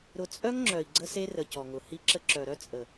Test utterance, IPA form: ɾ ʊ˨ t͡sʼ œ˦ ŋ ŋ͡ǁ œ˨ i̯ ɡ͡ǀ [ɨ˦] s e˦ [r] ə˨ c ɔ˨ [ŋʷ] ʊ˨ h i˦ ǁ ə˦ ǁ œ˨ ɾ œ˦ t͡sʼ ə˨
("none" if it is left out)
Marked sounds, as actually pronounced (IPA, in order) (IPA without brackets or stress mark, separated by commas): ə˦, r, ŋ